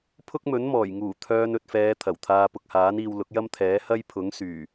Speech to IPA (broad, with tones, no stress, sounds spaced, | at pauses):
pʰ ʊ˥ k̚ m ɵ˨˥ n m ɔː˨˩ j ŋ uː˨˩ t̪ʰ œː˧ n ɵ˨ t̚ f ɛː˨˧ t̪ʰ ɐ˨˩ w t̪ʰ aː˧ p ʊ˨ k̚ h aː˨˥ n iː˧ w l ʊ˨˥ k̚ j ɐ˥ m t̪ʰ ɛː˨˥ h ɐ˥ j pʰ ʊ˨˥ ŋ s yː˨˩